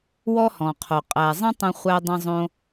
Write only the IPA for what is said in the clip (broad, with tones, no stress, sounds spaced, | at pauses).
w ɔ˥ h ɔ̃˩ qʰ o˩ qʼ æ˩ zˤ ə̃˥ tˤ ə̃˧ χʷ æ˧ dˤ ə̃˧ zˤ õ˧